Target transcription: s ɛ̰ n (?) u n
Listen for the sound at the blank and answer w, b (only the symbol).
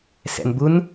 b